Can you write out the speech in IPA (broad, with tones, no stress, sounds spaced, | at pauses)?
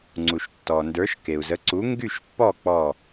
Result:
ŋ͡ǀ u˩ ʃ tː ɔ˩ n d ə˞˩˥ ʃ k e˩ u̯ z ə˩˥ ǀ u˩˥ ŋ ɡ y˥˩ ʃ pː ɔ˥˩ k͡p ɔ˧˩